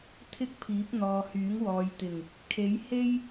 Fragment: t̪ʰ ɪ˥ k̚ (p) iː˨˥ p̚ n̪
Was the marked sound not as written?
yes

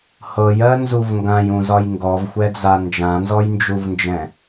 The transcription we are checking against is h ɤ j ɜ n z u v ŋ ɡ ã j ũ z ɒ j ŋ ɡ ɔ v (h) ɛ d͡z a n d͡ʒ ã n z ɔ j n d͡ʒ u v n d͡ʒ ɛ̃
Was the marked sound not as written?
yes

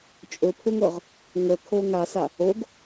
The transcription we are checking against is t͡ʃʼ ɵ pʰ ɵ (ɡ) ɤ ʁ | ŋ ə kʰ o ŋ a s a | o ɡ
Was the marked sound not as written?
yes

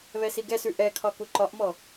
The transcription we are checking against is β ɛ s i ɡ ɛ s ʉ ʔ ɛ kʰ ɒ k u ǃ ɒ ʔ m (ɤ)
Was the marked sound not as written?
yes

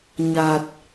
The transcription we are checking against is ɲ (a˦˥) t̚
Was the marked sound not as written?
yes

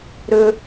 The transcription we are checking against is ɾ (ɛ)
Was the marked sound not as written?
yes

